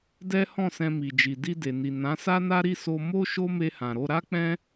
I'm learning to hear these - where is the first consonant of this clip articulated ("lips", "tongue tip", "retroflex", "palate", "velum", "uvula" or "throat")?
tongue tip